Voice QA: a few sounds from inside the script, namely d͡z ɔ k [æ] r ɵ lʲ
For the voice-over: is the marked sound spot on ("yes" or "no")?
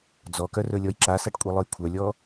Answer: no